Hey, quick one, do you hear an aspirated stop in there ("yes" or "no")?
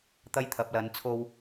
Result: yes